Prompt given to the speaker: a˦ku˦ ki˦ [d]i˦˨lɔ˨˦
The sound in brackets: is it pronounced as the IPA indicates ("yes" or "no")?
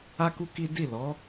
yes